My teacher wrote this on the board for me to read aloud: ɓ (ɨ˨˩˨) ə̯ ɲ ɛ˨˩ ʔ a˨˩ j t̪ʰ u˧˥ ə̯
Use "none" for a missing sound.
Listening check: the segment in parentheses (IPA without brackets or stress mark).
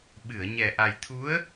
ɨ˨˩˨